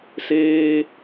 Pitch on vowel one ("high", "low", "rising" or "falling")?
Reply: high